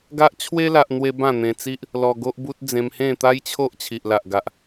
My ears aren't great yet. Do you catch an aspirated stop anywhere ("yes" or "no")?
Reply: yes